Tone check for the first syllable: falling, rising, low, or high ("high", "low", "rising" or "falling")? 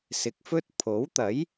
rising